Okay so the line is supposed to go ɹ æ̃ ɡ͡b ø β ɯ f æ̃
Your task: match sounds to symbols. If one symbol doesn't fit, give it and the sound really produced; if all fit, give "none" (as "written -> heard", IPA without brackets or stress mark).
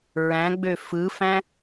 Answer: β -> f